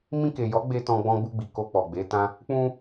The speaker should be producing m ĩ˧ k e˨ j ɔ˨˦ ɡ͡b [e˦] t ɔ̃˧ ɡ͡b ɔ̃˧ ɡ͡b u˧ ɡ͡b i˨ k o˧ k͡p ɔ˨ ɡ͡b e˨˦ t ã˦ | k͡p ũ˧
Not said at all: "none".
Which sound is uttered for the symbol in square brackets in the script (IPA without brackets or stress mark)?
e˧